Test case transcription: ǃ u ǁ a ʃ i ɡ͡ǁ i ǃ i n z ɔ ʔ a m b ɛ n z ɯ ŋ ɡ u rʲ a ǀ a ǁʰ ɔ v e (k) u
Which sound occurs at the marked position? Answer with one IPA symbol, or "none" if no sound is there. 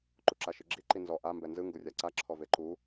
ǃ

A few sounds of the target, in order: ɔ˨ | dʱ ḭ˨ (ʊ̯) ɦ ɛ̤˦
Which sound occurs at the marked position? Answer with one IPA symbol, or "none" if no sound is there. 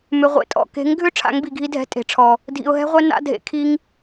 ʊ̯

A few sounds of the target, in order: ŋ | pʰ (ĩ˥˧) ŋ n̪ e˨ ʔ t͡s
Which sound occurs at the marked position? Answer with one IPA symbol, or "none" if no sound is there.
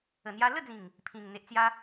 ĩ˨˩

